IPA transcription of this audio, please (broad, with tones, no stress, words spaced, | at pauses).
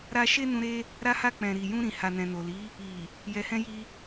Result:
ɾa˦ ʃe˦nũ˧ɾe˦ | ɾa˧ha˧k͡pɛ̃˨ ɾi˨jũ˧ ɾĩ˨ha˨nɛ̃˨no˨ li˨˦ | i˨ | jɛ˨hɛ̃˧ji˧